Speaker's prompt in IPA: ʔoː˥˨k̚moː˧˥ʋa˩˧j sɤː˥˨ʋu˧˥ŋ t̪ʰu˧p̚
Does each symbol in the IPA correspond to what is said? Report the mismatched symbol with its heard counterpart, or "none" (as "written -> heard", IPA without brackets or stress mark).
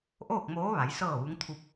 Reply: none